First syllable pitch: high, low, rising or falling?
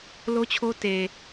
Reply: high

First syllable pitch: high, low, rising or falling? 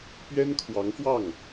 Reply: high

